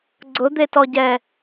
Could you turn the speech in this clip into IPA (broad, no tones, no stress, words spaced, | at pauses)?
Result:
ɡ͡ǀʊd̪etɔɟɛ